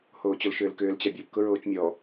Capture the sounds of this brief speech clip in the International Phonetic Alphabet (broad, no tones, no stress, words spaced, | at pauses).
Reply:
hoːt͡ɕolʃʏːlkʏːl t͡ɕabʲop kʊɹoːt͡ʃmʲɔ